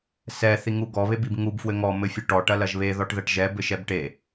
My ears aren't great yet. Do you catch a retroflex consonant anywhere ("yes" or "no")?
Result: yes